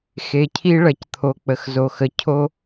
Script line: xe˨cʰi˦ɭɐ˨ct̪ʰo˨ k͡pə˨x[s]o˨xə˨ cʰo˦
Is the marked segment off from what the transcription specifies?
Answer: yes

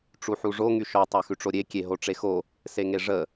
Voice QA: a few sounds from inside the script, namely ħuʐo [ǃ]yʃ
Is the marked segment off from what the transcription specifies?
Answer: yes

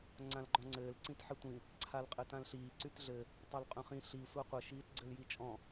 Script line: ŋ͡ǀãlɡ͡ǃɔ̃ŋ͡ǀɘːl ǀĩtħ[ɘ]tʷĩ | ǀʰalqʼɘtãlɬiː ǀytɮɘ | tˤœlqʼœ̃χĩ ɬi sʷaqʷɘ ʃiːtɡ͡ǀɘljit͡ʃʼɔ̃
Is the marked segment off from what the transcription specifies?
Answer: no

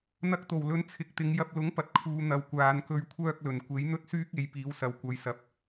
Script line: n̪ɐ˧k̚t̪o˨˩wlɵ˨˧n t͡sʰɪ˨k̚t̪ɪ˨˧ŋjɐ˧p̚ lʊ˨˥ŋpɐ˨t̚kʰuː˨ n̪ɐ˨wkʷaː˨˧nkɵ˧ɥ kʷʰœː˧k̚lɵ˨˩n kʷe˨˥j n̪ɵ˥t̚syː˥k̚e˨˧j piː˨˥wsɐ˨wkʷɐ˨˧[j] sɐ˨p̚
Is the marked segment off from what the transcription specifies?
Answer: no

